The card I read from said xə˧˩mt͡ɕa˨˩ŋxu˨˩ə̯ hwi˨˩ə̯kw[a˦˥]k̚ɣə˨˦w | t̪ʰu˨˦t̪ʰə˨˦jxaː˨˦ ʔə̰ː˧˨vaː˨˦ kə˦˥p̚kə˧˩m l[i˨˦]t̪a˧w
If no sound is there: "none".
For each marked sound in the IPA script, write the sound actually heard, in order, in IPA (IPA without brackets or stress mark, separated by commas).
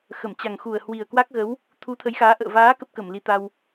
a˦˥, i˨˦